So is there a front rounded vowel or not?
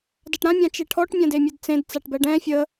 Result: no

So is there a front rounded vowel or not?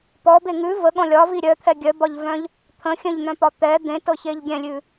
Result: yes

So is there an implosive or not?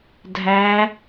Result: no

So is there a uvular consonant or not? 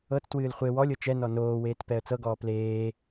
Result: yes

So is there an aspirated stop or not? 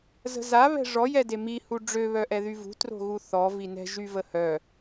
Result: no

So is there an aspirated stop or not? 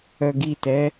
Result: no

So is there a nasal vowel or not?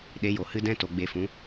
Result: yes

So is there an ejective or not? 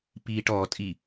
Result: yes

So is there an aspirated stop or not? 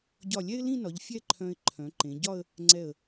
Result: yes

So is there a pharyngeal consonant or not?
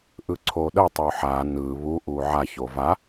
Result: yes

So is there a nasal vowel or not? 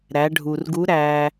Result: no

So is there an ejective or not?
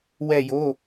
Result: no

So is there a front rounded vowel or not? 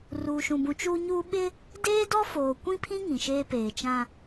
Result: no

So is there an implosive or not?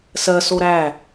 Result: no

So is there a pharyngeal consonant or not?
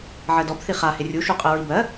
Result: yes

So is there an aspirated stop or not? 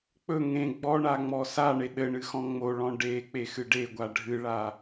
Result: no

